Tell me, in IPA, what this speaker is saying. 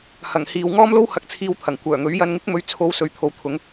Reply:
h ɐ˨˩ ŋ h iː˨ w ŋ ɔː˥ m l o˥ w h ɐ˧ k̚ t͡sʰ iː˧ w t̪ʰ ɐ˨˩ ŋ kʷ œː˨˩ ŋ ɵ˨˥ ɥ j ɐ˧ n ŋ ɪ˥ k̚ m ɵ˧ ɥ t͡sʰ o˧ w s ɵ˨˧ ɥ t̪ʰ o˨ w t̪ʰ ʊ˨˧ ŋ

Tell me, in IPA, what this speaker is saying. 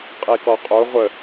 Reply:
qʼ i k ɔ qʼ o ʁʷ ə

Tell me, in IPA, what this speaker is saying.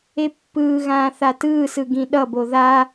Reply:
e pː ɯː ɣ ãː θ a t ɯː s ɯ ɡ ĩ ɗ ʌ b o ð a

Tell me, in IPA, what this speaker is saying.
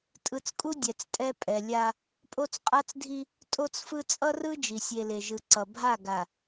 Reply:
tʼ ɯ˨ t͡s kʼ u˦ dʲ ɛ˨ t͡s tʼ ɛ˦ pʼ ɛ˨ lʲ a˦ | pʼ o˦ t͡s qʼ a˦ t͡s dʱ i˦ | tʼ o˦ t͡s f ɯ˦ t͡sʼ ʌ˦ r ɯ˦ d͡ʒ i˨ sʲ e˨ l e˨ ʒ ɯ˨ ǀ ʌ˨ bʱ a˦˨ ɡ a˨

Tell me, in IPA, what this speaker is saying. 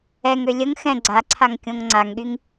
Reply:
ɛ ŋ ø lʲ ə ŋ x ɛ̃ ɡ͡ǀ a ǀʰ a ŋ kʲ õ ŋ ŋ͡ǀ a ŋ ɠ y ŋ

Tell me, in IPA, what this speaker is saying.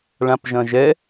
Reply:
ɭ ã p ʒ ɐ̃ ʒ ɛ

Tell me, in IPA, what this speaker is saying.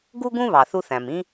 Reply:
ɡ u˥ ɡ ũ˥ β ɑ˩ θ u˥ θ æ̃˩ m ĩ˥

